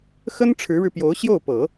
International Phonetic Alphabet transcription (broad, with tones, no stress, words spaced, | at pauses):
xə˥n ʈ͡ʂʰɻ̩˧˥ɻɻ̩˧ pjo˧˥ʊ̯ ɕjo˥˩ʊ̯pɤ˨˩˦